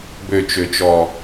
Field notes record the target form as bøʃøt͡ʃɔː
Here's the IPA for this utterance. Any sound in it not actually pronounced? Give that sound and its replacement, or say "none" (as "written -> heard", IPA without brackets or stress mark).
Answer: ʃ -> t͡ʃ